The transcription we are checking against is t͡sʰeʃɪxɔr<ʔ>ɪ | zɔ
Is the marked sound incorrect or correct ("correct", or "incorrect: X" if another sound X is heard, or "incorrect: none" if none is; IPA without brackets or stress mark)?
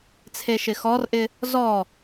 correct